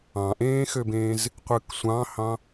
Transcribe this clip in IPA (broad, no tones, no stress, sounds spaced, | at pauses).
ɑ̃ ʔ ẽː x ø b ẽː z | qʷ ɯ k sʷ ɑ̃ h ɑ̃